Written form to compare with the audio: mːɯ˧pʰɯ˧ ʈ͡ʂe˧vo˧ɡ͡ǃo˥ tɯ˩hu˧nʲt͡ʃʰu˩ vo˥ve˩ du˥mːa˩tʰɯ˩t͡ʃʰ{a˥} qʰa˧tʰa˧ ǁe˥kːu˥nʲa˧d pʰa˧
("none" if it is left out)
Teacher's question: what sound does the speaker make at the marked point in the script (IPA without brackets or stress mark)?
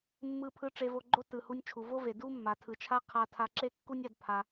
a˥